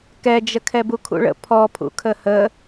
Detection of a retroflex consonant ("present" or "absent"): present